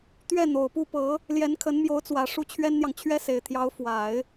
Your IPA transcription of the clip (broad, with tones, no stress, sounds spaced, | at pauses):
t̪ ɥ ɛ˥˩ n̪ o˨˩ ʊ̯ p u˥˩ p ɤ˧˥ | l j ɛ˧˥ n kʰ ə˧˥ n m j o˧˥ ʊ̯ t͡s w ä˨˩ ʂ u˥ t͡ɕʰ ɥ ɛ˥ n n̪ j ɑ˨ ŋ t͡ɕʰ ɥ ɛ˥ s e˨˩ ɪ̯ t̪ʰ j ɑ˧˥ ʊ̯ f w a˨˩˦ ɪ̯